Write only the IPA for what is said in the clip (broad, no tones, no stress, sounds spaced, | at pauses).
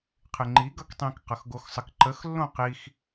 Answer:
qʰ ɪ ŋ͡ǃ i ɡ ʌ k tˤ ĩ k q ʌ x ɡ o x sˤ ə k ǃ ə x lː õ q i x